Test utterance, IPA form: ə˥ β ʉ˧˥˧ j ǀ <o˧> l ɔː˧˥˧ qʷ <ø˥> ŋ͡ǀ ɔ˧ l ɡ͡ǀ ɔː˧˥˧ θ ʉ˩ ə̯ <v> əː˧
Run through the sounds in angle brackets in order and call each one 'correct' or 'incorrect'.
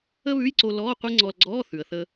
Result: correct, incorrect: e˥, incorrect: θ

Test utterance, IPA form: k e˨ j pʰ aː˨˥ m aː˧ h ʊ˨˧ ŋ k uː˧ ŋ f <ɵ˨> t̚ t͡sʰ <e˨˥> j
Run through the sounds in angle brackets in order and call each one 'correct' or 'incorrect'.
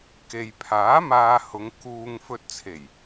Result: incorrect: ɵ˧, incorrect: e˨˩

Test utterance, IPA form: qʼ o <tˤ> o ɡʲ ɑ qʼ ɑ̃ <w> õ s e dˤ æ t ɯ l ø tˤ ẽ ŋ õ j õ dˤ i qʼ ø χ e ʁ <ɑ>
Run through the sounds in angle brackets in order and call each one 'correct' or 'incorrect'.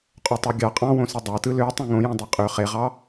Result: correct, correct, correct

